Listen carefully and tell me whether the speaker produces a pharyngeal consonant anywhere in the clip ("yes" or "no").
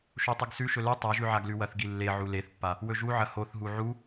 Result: yes